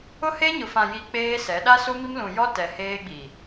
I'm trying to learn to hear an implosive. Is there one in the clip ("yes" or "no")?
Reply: yes